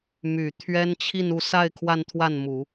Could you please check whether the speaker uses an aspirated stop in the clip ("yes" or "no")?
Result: yes